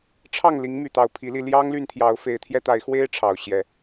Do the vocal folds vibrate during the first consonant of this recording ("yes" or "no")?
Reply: no